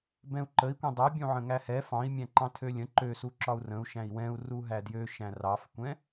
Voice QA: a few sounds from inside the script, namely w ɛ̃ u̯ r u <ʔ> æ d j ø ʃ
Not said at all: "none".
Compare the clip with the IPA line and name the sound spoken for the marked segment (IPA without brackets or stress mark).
ɦ